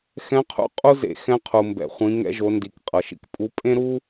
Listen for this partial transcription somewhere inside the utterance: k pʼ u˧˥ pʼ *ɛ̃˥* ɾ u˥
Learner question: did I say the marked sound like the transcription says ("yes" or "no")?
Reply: no